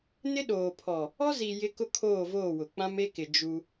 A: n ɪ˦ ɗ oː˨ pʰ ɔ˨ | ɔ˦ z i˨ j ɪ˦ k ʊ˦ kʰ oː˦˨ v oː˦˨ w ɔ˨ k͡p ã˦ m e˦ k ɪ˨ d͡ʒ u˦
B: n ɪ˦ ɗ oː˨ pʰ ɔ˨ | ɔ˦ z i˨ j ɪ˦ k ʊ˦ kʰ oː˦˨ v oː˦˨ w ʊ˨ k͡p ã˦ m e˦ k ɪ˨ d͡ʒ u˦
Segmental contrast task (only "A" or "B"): B